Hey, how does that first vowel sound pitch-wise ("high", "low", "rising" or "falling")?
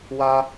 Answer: high